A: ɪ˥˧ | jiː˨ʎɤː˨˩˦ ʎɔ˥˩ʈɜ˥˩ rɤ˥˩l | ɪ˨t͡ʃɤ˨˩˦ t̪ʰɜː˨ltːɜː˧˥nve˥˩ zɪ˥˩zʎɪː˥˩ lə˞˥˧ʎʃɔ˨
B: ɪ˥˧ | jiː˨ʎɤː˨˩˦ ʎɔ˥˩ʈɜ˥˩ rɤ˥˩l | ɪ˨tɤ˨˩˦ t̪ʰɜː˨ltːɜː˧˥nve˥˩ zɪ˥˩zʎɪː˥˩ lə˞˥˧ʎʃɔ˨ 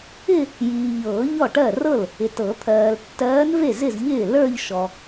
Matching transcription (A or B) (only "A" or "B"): B